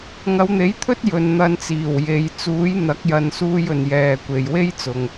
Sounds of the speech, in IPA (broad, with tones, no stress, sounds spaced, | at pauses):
ŋ ɐ˨˧ w n̪ e˨˥ j t̪ʰ ɵ˥ t̚ j ɵ˨ n n̪ ɐ˧ n t͡s iː˨˩ w j e˨˧ j t͡s uː˨˥ j n̪ ɐ˨˥ k̚ j ɐ˨ n s uː˧ j ɵ˨ n j ɛː˨ kʷ e˨ j w e˥ j t͡s ʊ˨ ŋ